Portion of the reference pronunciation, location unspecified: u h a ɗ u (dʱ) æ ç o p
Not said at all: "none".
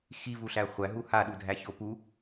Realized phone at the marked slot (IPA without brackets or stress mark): dʱ